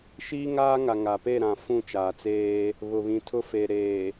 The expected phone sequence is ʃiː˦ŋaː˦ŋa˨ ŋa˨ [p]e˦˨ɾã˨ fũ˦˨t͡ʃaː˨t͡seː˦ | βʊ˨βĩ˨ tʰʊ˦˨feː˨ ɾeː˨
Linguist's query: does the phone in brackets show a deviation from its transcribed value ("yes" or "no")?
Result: no